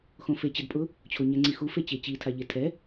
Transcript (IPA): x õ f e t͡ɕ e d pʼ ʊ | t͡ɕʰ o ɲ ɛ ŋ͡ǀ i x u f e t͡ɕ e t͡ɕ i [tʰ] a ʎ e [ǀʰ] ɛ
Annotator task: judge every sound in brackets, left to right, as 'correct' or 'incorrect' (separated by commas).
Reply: correct, incorrect